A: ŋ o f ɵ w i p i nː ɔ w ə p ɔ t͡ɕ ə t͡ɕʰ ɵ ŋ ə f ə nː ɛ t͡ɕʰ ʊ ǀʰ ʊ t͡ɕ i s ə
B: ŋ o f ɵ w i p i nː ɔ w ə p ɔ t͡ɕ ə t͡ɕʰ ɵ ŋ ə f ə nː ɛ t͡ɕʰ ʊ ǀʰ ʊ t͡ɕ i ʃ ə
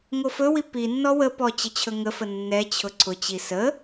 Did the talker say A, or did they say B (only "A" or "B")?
A